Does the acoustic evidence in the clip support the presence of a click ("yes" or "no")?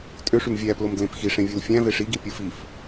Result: no